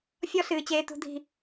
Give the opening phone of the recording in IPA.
fʲ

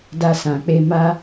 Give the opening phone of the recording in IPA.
d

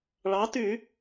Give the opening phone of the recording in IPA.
ɭ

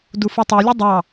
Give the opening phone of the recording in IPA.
d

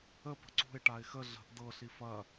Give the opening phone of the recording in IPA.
ə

